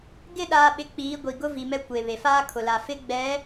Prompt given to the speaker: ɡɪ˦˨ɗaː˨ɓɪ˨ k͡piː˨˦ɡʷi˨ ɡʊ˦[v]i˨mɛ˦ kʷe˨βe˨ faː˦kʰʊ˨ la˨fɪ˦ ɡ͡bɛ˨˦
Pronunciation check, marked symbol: correct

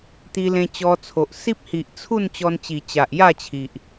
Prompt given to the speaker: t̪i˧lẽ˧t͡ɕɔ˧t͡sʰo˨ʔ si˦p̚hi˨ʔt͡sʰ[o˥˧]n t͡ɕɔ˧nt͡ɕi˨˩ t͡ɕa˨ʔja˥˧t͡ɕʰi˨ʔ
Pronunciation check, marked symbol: incorrect: u˥˧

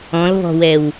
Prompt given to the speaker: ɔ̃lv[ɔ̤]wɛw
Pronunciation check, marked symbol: correct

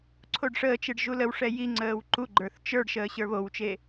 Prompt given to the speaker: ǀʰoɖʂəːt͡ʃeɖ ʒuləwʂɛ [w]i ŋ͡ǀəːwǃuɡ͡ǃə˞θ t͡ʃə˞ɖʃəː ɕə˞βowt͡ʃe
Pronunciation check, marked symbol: incorrect: j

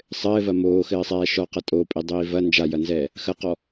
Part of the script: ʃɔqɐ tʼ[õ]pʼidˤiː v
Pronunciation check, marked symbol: incorrect: o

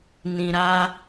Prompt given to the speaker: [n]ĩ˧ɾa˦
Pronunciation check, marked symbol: correct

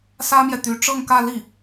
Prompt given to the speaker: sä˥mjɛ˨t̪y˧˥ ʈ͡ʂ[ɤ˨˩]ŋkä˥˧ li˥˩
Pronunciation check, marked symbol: incorrect: ɤ˥˧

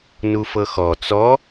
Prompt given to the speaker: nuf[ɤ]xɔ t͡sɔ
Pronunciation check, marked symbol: correct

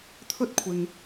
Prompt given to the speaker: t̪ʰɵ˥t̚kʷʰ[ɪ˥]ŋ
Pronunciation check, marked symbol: incorrect: ɪ˧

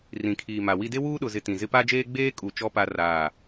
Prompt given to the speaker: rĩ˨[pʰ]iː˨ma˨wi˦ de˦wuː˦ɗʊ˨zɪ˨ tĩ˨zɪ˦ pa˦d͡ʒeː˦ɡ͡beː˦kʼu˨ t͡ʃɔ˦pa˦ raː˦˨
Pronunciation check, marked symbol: incorrect: kʰ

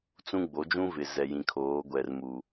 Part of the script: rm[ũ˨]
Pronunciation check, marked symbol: incorrect: u˨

